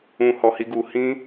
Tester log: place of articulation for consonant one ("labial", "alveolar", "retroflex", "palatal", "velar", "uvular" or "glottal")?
glottal